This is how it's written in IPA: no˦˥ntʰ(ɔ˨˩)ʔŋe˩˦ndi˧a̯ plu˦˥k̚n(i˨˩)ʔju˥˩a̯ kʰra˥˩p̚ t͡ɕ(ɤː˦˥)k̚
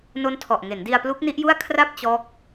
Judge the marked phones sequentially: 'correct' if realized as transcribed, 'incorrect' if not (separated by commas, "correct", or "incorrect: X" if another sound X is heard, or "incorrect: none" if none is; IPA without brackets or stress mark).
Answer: correct, incorrect: i˦˥, incorrect: ɔː˦˥